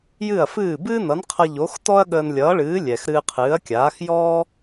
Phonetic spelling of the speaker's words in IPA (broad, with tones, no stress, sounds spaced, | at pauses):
j ɨ˥˩ ɐ̯ f ɨː˥˩ b ɨː˥ n ʌ˩˥ n qʰ ʌ˧ ʎ o˩˥ x t ɔ˥ ɐ̯ ɠ əː˧ n lʲ ʌː˩˥ ɭ ɨː˩˥ lʲ ɛ˩ x ɾ ɨː˧ qʰ ɨː˩˥ ɐ̯ kʲ aː˩˥ x j ɔ˥